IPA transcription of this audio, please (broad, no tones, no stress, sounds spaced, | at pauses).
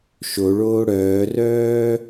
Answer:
ʃ o ɭ oː ɽ œː r œː